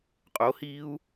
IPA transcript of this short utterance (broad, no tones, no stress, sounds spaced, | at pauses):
qʼ o h iː u̯